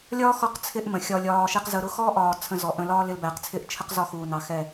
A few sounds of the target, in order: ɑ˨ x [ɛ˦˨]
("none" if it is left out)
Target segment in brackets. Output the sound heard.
ɛ˦˨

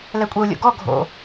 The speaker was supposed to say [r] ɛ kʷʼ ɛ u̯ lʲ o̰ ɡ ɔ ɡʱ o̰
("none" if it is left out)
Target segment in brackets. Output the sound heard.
l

